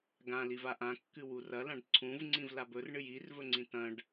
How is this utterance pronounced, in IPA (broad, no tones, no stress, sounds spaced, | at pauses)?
ɡ ã l i v a ʔ ã kː ɨ w u r ɐ l ã ɖ ǀʰ ũ v ŋ͡ǀ ĩ v l a b ɵ r ɳ ɨ j i r v ɵ ŋ͡ǀ ĩ t ɐ̃ ɖ